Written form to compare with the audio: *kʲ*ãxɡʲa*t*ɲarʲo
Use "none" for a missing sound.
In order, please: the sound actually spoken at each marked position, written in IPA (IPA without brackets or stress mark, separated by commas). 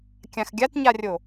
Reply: kʲ, t